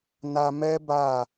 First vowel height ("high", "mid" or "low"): low